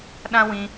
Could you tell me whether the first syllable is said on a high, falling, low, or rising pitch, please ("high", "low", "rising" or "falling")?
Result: high